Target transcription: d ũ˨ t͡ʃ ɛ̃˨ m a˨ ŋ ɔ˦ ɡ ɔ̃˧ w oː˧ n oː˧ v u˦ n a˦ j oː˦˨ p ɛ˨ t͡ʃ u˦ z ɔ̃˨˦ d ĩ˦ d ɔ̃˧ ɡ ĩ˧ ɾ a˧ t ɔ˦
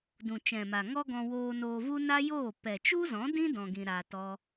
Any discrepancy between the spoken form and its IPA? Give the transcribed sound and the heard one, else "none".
none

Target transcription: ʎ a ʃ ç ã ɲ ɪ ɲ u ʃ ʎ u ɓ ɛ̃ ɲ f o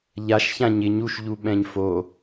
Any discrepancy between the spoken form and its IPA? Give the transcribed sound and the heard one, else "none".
none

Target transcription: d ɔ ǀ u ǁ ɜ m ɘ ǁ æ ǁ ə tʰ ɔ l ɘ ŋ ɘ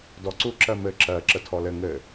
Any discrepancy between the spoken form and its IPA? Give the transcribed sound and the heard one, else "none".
æ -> ɜ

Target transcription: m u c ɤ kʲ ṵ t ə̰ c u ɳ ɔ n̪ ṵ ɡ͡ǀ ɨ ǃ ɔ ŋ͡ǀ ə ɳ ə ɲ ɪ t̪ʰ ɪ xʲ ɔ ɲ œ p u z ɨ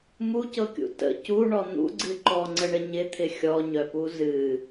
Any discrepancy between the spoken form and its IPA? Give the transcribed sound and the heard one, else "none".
none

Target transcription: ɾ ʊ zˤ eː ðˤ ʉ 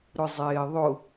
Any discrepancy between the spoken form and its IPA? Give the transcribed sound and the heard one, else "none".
ʉ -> ʊ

